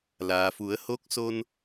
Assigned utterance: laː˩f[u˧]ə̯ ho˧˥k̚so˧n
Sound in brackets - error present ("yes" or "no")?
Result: yes